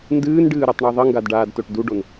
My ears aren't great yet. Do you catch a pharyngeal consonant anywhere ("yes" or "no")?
no